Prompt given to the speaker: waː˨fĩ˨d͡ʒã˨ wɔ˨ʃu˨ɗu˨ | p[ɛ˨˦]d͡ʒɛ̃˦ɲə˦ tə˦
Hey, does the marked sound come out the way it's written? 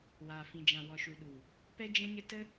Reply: no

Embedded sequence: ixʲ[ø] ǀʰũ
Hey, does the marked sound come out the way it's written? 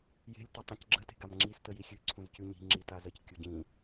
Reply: no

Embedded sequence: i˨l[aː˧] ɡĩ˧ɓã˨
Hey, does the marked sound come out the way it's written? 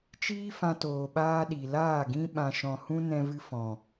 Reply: no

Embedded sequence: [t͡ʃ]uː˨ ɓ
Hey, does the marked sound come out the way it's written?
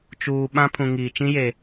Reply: yes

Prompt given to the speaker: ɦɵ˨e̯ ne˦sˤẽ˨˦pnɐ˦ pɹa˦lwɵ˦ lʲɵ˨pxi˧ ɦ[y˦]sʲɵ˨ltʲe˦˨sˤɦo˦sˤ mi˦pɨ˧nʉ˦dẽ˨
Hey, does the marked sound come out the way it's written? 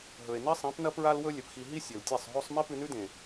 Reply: no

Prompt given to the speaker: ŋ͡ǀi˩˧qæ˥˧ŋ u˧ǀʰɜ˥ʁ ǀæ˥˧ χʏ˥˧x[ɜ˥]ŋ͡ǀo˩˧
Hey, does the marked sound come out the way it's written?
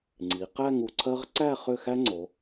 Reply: no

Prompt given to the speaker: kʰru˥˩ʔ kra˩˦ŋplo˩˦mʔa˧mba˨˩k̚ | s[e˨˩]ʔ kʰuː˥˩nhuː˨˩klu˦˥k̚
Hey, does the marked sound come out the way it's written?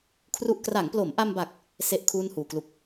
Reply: no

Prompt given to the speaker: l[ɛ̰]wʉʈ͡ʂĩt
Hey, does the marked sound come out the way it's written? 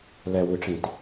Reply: no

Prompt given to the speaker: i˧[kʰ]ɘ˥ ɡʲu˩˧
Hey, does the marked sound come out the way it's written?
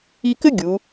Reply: no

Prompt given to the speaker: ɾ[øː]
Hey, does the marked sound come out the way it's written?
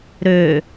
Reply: yes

